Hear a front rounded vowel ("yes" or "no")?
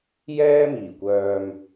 yes